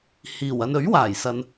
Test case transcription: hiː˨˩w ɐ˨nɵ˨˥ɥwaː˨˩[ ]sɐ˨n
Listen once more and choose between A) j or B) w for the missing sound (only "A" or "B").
A